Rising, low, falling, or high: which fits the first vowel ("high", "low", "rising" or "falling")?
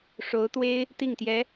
rising